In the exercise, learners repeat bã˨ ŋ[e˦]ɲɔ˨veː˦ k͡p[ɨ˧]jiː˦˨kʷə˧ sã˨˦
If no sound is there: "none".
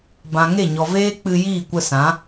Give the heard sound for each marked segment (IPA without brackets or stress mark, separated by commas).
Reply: e˦˨, ɨ˧